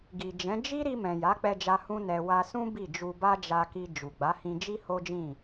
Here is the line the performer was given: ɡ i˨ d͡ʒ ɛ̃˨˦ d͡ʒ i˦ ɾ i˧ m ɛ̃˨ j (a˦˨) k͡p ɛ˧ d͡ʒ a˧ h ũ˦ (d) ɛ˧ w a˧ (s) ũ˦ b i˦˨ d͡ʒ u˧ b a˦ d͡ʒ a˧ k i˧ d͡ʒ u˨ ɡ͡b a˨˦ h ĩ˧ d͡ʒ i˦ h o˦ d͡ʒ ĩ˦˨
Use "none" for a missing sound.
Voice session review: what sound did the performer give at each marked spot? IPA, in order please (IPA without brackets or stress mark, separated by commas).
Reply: a˨˦, n, s